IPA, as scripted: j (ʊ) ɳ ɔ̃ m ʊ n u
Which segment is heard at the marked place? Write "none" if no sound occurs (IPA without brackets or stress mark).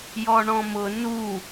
ɔ